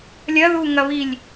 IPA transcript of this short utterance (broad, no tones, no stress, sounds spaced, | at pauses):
lʲ ɐ ð u ŋ ɐ β i lʲ